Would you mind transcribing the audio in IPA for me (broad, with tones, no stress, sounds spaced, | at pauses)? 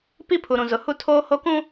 p i˦ pʰ u˨ ɾ ũ˨ z ʊ˨ h u˦ tʰ oː˦ h o˦ k ũ˦